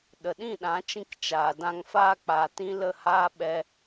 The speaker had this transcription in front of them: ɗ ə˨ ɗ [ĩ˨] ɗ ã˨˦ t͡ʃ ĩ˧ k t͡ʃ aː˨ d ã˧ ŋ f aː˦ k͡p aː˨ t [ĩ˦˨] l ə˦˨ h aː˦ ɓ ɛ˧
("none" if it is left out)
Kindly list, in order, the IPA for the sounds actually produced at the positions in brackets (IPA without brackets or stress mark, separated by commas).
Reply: ĩ˦˨, ĩ˦